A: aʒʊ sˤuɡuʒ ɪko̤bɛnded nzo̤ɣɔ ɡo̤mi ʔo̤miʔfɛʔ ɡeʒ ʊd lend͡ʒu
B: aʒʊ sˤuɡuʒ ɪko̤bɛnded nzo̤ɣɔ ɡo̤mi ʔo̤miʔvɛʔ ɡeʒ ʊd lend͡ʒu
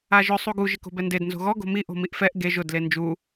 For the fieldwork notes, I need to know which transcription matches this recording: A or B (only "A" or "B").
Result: A